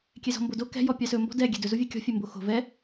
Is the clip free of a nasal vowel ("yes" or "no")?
yes